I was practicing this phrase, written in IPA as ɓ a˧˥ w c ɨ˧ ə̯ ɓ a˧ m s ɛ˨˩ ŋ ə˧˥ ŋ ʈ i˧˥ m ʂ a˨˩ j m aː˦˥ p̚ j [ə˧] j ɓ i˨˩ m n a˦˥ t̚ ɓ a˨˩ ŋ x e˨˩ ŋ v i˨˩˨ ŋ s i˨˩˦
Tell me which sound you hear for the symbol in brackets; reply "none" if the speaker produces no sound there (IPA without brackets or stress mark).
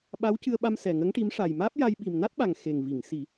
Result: a˧